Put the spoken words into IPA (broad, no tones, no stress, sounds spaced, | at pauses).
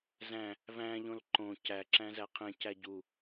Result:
z æ̃ | v æ̃ ʎ õ l ǃ õ c æ ǁ æ̃ z æ qʰ ẽ c æ ɟ u